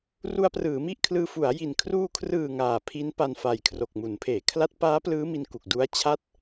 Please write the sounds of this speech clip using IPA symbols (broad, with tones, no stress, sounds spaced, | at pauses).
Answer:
r u˧ a̯ p r ɯː˩˦ m i˥˩ ʔ kʰ l ɯː˧ f u˩˦ a̯ j i˨˩ n kʰ r uː˧ kʰ r ɯː˨˩ ŋ aː˨˩ pʰ i˦˥ n p a˧ n f a˨˩ j kʰ r o˨˩ k̚ m u˩˦ n pʰ eː˩˦ kʰ l a˦˥ t̚ p aː˦˥ p l ɯː˦˥ m i˧ n k u˨˩ k̚ d u˦˥ a̯ t͡ɕʰ a˥˩ t̚